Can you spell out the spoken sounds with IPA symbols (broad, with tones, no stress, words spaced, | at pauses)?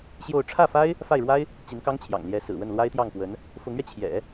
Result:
ɕjo˥˧ʊ̯ ʈ͡ʂʰä˥˩fa˥ɪ̯ | fa˥˩ɪ̯ɻwa˥ɪ̯ | t͡ɕi˧˥nkɑ˥ŋt͡ɕʰjɑ̰˨˩ŋ ljɛ˧˥ sɹ̩˨˩wə˥˩n lwa˥ɪ̯t̪jɑ˥˩ŋpwə˧˥n | fʊ˧˥ŋɥɛ˧t͡ɕʰjɛ̰˨˩˦